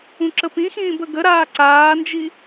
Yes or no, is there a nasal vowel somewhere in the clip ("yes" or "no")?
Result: yes